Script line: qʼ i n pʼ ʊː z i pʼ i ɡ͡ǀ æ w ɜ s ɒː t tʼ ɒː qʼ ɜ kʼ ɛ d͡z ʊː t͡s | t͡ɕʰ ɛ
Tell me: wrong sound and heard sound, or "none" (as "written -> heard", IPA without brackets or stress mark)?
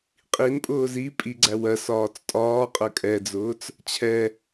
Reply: t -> t͡s